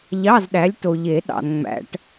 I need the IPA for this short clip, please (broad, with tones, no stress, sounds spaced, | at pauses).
ʎ ɑ˧˥˧ z ɗ æ˨˥ lʲ t o˨ ʎ e˨˩˦ ɗ ɑ̰˨ n ŋ͡m æ̰˨˩˦ ʈ